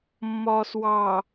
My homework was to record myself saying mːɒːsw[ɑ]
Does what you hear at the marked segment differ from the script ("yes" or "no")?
no